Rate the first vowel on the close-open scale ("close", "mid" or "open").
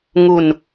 close